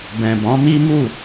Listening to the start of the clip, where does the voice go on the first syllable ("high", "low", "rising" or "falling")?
low